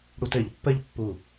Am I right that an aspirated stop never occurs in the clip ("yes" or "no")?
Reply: yes